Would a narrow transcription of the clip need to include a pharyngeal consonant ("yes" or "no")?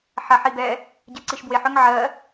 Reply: yes